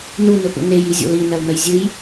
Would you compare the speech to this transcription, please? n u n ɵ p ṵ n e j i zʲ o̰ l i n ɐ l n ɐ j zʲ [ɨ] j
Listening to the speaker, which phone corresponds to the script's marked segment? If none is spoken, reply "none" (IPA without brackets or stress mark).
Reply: ɨ